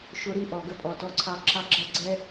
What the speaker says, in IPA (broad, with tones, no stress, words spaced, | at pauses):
ʃʊ˦ɾi˦ʔɔ˨ ɡə˦pʼɔ˨tɔ˦ǀʰɑ˦ ǁɑ˦ɡ͡ǁʌ˦˨ɡ͡ǀɛ˦